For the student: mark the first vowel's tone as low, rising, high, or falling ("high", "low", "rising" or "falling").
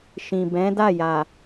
low